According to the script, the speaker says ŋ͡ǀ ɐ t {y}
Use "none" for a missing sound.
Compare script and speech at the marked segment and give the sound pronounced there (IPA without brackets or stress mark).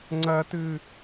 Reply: ɨ